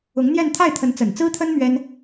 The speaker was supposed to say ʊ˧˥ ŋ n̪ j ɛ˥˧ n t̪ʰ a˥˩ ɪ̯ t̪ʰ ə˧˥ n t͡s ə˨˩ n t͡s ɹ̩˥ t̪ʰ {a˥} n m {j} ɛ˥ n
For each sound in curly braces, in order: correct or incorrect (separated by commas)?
incorrect, incorrect